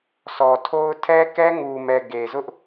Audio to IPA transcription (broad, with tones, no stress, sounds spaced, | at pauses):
s ɔ˨ tʰ o˦ ʊ̯ tʰ ɛ˦ k ɛ˦ ŋ u˨ m ɛ˨ ɡ e˨ z ʊ˦ ʔ